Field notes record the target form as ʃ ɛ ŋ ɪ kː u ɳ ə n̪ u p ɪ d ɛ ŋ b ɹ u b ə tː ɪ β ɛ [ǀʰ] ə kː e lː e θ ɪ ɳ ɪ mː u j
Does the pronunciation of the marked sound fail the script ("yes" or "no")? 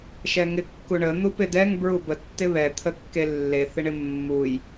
yes